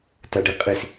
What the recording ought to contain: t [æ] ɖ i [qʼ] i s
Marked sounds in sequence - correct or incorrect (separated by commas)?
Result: correct, correct